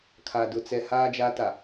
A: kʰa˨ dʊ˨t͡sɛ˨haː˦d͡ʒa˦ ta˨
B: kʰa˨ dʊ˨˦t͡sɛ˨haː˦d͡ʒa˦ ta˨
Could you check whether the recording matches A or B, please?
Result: A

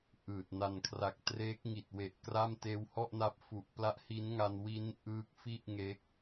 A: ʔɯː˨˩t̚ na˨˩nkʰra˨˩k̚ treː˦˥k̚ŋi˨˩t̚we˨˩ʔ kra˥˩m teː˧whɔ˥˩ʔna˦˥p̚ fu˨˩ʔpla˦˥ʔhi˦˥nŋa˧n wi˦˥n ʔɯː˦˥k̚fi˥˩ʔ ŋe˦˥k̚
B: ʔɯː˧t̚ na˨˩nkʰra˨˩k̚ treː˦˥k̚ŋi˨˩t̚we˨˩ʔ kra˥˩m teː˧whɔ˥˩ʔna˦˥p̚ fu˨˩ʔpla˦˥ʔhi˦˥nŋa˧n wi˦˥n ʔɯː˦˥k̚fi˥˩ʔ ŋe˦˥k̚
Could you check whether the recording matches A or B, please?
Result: A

